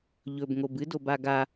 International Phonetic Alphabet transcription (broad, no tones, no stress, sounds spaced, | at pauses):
ʎ ɵ b ŋ o b ɨ d o b a ɡ a